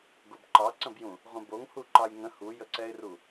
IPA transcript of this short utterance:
ɡobǃɑǀə̃bjũ | ʁʷə̃boŋ huǃɑjŋə̃ hujəǀɛɪ̯ru

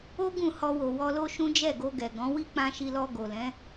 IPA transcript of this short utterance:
o˦ ɡũ˦˨hɔ˧wo˨ wɔ˧lo˦ʃũ˦ d͡ʒɛ˦˨ɡo˧ɡɛ˨ɡɔ̃˨˦ wi˦k͡pã˧ʃi˧lɔ˧ ɡo˨lɛ̃˨˦

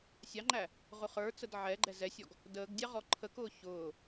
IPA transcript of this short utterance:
sʲɑŋ͡ǃæ | ʁʊχə˞t͡səd ʕɛɡ͡ǃɛ zɛsʲɔɡ | dəːɡdʲɑ ʁɔǃʰəkʊː çʊː

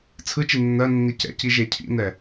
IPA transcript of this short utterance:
t͡sʰɯ t͡ʃinːɜnːi cɛ̰ci ʒecʰḭnɛ

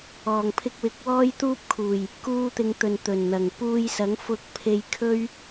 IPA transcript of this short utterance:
ɔː˨˩ŋpʰɪ˧k̚wɪ˨˥k̚wɔː˥j t̪uː˥p̚kʰuː˨˩j | kuː˧t̪ɪ˨˧ŋ t̪ɵ˨nt̪ɵ˨˩nn̪ɐ˨˩ŋ puː˧jsɐ˨˥ŋ fʊ˧k̚pʰe˧j kʰɵ˥ɥ

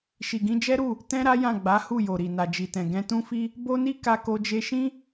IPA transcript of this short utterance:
ʃi˨ɡĩ˧d͡ʒɛ˦ɾu˦˨ | tɛ̃˦ ɾa˦jã˦˨ɡ͡ba˨˦ hu˦˨jo˨ɾi˨ na˨d͡ʒi˨tɛ̃˨ ɡɛ̃˧tũ˦fi˦ | bo˦ni˦ ka˦ko˦ d͡ʒe˧ʃĩ˦

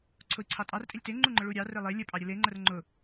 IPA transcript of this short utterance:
ǀʰʊi̯ǀʰɑtʼɑrtʼelʲ teŋ͡ǃuŋ͡ǃʊ ɭuɾʲɑ relˠe lʲəpʼɑɾʲə leŋ͡ǃər ŋ͡ǃʊ

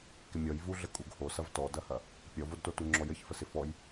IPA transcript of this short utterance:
kɪmʲɔj vuɮə kʼuɡhosɐv tɔdɐhɐ | pʲɔvodto tuŋ͡ǁɔjəç fəsɪfɔj

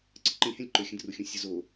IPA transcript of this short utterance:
ǀə ǃə̃lʲhɛ̃lʲ ǃɵxʲə̃druxʲũ sʲʊzo

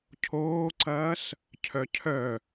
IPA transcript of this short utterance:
cʰoːǀɐːs | cʰœcʰœ

